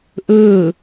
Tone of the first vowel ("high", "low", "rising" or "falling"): falling